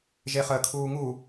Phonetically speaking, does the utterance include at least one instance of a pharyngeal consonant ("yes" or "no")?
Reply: no